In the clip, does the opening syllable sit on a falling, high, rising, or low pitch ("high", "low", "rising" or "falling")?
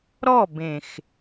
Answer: falling